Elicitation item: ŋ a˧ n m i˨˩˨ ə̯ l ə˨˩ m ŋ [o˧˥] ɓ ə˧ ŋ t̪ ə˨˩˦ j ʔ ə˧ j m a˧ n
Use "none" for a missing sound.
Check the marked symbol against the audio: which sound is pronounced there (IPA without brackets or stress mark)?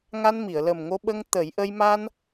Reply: o˧